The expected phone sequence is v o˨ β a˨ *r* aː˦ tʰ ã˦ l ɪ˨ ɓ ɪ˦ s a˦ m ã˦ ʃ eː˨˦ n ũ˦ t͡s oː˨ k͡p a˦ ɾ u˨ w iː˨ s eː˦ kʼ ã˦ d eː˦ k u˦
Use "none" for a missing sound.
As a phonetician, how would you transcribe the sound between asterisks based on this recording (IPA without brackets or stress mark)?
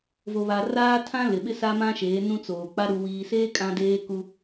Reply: r